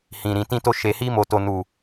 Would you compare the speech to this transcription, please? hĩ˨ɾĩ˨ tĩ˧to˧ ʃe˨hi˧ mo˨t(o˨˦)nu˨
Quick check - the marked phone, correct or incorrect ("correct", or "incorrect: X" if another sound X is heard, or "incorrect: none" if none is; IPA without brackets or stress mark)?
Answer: incorrect: o˨